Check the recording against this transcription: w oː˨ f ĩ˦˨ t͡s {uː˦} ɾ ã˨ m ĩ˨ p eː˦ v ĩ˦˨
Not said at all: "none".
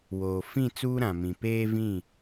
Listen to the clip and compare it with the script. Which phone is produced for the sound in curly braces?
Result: uː˦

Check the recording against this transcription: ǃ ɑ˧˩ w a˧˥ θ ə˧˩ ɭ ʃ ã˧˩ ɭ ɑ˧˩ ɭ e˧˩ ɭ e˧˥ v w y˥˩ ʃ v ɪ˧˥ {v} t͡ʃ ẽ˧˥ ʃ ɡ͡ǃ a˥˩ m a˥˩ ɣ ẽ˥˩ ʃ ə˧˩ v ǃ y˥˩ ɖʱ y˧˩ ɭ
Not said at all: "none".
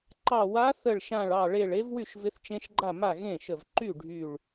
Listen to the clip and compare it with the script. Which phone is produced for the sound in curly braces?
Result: θ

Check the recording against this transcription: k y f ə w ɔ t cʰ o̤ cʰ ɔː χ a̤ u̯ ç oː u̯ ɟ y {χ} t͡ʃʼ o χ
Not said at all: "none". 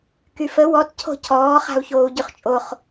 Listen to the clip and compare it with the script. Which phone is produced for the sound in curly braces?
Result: χ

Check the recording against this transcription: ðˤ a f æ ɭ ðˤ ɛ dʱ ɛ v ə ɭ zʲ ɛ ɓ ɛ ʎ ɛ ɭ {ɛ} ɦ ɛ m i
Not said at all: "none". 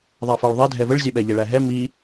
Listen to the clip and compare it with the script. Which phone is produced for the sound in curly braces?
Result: æ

